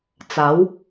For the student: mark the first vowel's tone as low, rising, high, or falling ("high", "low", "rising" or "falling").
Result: rising